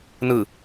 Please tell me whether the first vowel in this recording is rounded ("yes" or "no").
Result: no